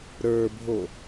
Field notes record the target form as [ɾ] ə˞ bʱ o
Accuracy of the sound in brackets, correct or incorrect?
correct